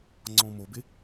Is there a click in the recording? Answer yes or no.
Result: yes